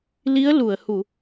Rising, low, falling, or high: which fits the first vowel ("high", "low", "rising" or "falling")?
rising